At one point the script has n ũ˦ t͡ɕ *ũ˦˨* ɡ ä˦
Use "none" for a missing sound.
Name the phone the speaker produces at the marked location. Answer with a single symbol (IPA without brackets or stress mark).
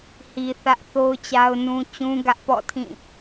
ũ˦